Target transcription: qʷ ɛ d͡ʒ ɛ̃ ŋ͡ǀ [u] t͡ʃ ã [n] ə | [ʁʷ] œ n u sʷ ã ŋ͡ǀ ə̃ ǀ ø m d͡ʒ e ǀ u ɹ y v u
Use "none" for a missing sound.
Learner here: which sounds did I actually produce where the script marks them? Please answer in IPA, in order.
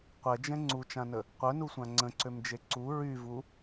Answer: u, n, qʷ

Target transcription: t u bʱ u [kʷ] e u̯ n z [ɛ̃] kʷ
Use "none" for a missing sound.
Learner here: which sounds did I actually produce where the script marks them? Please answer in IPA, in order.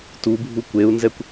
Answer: kʷ, ɛ

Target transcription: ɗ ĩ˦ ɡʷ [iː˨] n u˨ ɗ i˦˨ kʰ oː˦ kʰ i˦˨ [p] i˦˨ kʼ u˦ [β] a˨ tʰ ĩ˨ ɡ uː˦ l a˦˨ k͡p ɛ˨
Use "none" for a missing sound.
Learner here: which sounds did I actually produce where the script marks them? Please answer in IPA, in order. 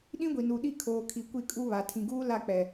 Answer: i˨, kʷ, β

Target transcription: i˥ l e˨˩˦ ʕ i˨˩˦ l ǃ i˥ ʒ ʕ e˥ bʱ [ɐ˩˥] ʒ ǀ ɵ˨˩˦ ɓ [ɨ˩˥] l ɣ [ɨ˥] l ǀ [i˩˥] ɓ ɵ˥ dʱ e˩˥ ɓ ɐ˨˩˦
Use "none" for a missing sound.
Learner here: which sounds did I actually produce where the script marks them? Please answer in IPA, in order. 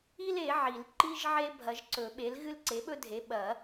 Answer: ɐ˨˩˦, e˩˥, ɨ˥, e˩˥

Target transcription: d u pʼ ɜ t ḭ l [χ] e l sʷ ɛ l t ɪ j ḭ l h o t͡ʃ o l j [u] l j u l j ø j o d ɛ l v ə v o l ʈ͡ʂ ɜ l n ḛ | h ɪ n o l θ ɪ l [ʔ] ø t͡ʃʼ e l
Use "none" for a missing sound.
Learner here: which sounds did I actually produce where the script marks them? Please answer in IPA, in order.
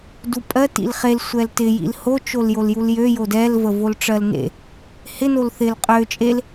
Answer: χ, o, qʼ

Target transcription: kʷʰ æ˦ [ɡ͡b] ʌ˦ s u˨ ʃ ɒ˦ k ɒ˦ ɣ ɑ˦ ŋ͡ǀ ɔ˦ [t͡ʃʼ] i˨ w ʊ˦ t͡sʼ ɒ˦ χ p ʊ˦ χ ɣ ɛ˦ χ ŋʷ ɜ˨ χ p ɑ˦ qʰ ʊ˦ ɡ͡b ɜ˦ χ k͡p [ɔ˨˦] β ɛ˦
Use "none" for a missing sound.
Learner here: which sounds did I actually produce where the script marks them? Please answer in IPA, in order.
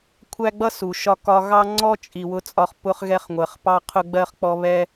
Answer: ɡ͡b, t͡ʃʼ, ɔ˦

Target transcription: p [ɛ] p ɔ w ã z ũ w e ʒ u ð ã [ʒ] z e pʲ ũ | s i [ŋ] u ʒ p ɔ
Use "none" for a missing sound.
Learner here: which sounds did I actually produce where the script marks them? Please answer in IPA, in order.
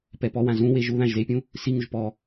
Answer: ɛ, ʒ, ŋ

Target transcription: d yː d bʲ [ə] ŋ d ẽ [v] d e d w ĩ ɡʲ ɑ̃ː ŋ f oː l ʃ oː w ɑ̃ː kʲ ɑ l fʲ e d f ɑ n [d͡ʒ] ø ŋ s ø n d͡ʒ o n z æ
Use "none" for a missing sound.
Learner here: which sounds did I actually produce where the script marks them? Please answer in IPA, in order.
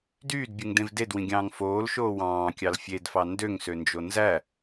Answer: ɯ, v, d

